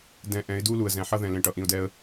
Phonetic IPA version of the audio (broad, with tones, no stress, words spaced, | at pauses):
dɛ̃˧ʔɛ̃˨˦ɪ̯ du˦lu˨ə̯zɛ̃˨ ħʌ˧ðɛ̃˨ lẽ˨ʈʌ˨ʔĩ˨ʊ̯dɛ˧ə̯